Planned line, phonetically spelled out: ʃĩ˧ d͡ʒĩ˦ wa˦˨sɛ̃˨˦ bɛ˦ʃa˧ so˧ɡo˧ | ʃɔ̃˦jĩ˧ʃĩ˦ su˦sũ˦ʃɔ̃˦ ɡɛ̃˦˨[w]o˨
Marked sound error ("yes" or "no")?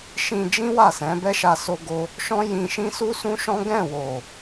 no